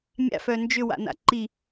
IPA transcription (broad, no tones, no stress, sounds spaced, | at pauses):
mʲ a̰ f œ n d͡ʒ ʏ w a̰ n a̰ ǃ i